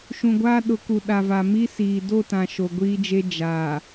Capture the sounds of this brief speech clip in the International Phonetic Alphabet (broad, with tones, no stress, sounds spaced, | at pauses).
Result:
ʃ ũ˨ ɡʷ aː˦ ɗ ʊ˨˦ k u˨ ɗ a˨ v a˨ m i˦ s iː˨ d o˦˨ t ã˨ ʃ o˨ ɡʷ iː˦ d͡ʒ e˦ d͡ʒ aː˨